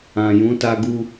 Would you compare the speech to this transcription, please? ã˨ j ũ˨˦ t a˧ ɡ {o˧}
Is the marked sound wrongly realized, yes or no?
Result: yes